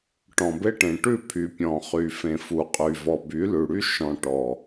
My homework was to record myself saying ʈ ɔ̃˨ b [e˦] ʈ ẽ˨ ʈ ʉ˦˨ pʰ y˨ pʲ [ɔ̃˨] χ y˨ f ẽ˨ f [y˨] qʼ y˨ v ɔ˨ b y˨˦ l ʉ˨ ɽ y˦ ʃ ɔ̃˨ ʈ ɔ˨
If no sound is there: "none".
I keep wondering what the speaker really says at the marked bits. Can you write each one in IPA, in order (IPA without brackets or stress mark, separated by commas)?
e˦, ɔ̃˨, u˨